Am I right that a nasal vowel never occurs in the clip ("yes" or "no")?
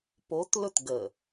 yes